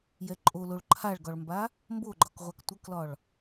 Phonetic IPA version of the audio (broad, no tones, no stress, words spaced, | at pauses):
jɛǃʼoloɭ ǃʰaɭɡɒɭmba | mboɡ͡ǃɒkʁʷak tʷəklɒɭ